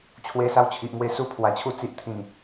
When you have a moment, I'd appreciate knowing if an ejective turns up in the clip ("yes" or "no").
no